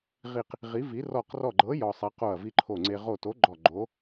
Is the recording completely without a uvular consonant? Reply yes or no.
no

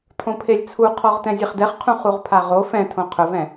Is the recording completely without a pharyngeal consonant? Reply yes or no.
yes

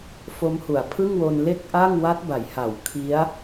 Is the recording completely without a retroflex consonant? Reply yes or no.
yes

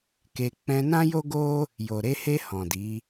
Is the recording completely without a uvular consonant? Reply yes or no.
yes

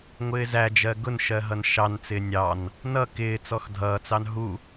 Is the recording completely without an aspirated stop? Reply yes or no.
yes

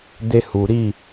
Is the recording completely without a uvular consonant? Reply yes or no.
yes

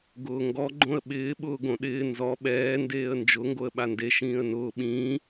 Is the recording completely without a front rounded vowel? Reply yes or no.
yes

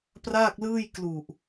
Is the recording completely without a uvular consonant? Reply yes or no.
yes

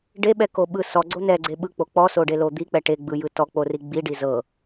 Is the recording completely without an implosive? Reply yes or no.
no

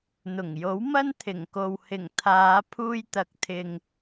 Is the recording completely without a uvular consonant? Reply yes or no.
yes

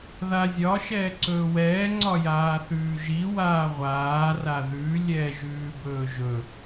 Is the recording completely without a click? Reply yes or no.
no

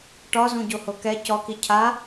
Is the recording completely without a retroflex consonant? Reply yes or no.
no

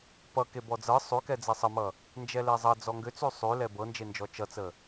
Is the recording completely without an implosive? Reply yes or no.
yes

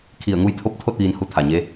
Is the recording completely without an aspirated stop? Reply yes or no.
no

